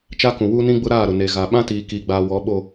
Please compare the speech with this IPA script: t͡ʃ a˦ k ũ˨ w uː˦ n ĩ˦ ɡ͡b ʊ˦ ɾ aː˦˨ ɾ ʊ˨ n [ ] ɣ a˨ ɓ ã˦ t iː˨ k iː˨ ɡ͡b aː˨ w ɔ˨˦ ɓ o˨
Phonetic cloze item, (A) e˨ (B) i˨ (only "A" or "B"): A